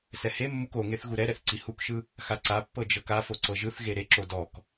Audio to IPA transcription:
sɛhemːuk oŋeθ ɣuɾɛɾɛθ ǀihukʃɯ | xaǀapːɤ d͡ʒɤkafo ǀɤʒɯθɣe ɾeǁo dɔk

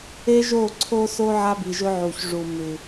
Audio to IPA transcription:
e˦ʒo˦˨ǀʰo˦so˦ ʕa˦bi˨ʒɵ˦ ʕu˨ç ʐu˨ mʉ˨

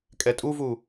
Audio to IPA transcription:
kʼɛtʼuvu

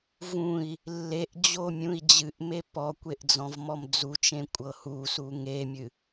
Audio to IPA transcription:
vũi̯ | lːeʔd͡ʑo mʲũi̯d͡ʑɨʔme pɔkʷeʔ d͡zɔ̃vmɔmd͡zut͡ʃẽ kʷʼɤhusu ŋemʲɨ

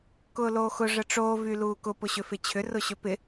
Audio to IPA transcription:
kʊːloːxʊ ʐəʈ͡ʂoː vyluːkʊ pʊɕʏfɪt͡ɕʰʏ rʊɕʏpɪ

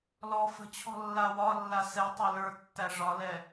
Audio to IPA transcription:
lɔ fə̤t͡ɕʰɔ̤ lːawɒlːa sɛtˤɛ lə˞tːæ ʐɒlɛ

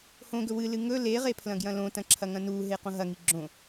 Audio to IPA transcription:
hõɡɵ wɨlɨ ŋɵ leʁe pʰlɐ̃ɡjɐ̃lõtɐ̃ ǁʰɐŋɐ̃nuɦe qõɦɐŋi ɡ͡ǁõ

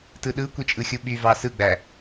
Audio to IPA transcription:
tɯɗɯkʷit͡ʃʼɯ xʲuɓyvɑ sɯɡ͡bæ

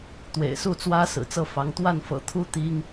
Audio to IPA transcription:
t̪wḛ˨˩ɪ̯su˥˩t͡swä˥ sɹ̩˨˩t͡sɤ˥˩ fɑ˧˥ŋ t̪wa˥˩nfɤ̰˨˩t̪ʰu˥ t̪i˥ŋ

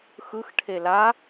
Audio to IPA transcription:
xɯxʈʰe la

